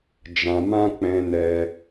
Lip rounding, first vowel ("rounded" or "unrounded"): unrounded